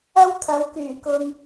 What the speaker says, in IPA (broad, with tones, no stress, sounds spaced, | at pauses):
ɐ˥ w t̪ʰ ɐ˨˧ w k yː˨˩ k ʊ˨ ŋ